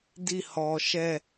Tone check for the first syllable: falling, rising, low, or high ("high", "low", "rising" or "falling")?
falling